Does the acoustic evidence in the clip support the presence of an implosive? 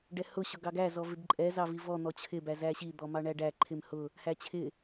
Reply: no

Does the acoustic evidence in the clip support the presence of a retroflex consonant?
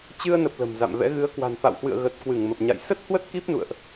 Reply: no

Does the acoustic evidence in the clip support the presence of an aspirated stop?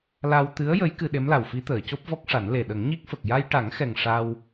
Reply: no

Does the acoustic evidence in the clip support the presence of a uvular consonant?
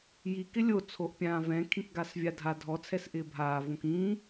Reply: no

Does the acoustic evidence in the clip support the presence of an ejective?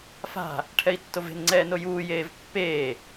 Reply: no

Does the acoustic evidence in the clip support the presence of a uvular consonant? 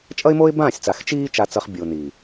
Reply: yes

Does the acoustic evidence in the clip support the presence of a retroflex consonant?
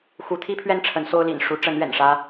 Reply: yes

